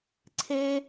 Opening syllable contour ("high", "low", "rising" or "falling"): high